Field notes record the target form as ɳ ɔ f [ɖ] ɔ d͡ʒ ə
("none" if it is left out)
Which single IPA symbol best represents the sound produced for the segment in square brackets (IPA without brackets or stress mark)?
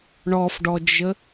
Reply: ɖ